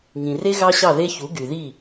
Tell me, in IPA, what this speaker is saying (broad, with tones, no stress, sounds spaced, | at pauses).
ŋ ĩ˨ r e˦ ɣ ɑ˦ ɕ ɑ˦˨ ð e˦ ç u˨˦ ɡ y˨ ð i˦˨